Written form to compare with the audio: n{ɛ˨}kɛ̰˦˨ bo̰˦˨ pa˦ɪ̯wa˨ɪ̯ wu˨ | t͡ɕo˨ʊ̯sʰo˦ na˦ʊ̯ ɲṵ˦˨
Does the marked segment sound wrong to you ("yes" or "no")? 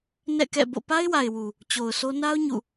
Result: yes